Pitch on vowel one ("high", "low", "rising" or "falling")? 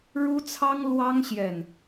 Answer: high